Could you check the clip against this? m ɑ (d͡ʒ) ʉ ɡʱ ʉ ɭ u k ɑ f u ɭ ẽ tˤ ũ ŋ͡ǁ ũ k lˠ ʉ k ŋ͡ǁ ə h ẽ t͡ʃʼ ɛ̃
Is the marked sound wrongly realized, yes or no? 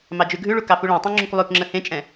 no